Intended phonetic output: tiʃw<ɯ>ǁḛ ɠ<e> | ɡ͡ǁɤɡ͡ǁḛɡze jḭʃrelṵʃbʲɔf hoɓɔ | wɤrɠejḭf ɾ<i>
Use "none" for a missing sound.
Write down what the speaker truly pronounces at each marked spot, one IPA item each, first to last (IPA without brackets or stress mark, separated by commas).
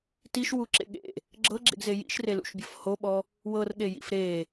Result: u, ḛ, e